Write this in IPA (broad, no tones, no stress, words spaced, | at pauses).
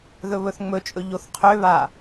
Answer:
ðɵβɵθŋ͡mɵt͡ʃʼɵ ʎoθqʰøβa